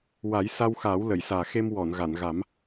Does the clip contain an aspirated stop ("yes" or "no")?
no